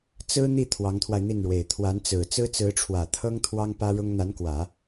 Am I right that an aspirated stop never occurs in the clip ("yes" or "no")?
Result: no